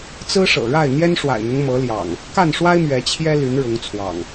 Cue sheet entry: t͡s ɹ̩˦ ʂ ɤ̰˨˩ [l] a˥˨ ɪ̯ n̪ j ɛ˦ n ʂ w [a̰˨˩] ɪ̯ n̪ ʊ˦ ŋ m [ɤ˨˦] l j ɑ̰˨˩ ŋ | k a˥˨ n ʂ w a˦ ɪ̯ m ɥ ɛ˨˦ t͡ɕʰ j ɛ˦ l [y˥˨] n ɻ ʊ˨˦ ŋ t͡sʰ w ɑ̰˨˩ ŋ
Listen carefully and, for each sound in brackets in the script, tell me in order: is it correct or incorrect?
incorrect: ɻ, correct, correct, incorrect: y˨˦

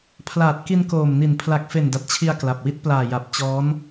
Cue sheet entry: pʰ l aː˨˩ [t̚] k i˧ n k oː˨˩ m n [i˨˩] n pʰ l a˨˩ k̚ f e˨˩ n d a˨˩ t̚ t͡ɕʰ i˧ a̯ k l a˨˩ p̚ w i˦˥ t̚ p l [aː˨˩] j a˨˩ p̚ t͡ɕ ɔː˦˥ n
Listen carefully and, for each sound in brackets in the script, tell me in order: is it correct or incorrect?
correct, correct, correct

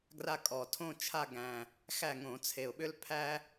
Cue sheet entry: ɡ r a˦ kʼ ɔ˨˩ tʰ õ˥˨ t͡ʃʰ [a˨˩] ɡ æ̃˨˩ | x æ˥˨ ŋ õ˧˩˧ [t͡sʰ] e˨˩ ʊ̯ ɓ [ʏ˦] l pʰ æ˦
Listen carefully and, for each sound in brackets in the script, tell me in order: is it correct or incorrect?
incorrect: a˥˨, correct, correct

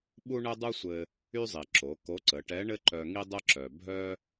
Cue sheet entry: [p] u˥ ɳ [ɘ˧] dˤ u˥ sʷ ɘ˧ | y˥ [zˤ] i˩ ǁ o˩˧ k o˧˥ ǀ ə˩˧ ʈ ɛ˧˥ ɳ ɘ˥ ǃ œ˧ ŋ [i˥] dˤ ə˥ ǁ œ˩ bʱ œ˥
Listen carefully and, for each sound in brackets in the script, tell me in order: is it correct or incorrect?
incorrect: ɓ, incorrect: ɘ˥, correct, correct

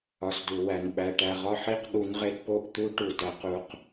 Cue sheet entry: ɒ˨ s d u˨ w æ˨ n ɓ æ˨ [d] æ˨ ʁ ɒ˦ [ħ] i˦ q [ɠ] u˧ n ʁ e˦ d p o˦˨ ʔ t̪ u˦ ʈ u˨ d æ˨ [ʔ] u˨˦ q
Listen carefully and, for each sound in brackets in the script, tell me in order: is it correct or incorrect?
incorrect: ʈ, correct, correct, incorrect: q

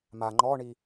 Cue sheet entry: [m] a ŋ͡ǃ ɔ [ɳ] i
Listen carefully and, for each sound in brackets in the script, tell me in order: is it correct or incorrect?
correct, correct

